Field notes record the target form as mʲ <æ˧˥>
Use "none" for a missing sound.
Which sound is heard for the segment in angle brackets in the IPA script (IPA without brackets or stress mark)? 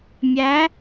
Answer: æ˧˥